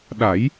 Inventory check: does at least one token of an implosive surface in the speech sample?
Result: yes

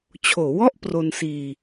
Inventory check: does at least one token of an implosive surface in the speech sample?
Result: no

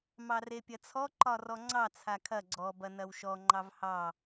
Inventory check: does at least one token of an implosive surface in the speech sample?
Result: no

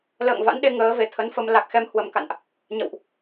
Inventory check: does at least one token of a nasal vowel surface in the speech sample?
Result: no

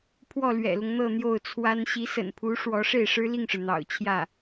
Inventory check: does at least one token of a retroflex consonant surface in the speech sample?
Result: yes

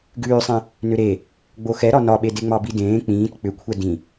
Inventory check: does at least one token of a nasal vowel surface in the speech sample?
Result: yes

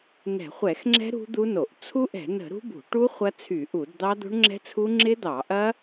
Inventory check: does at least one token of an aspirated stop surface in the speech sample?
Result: yes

